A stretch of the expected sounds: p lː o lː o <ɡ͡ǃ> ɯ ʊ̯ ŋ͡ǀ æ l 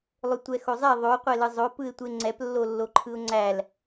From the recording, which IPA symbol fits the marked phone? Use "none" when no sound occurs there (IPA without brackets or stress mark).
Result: ǃʰ